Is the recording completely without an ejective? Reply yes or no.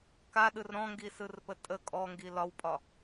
no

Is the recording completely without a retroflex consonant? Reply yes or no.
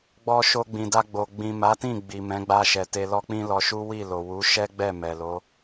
yes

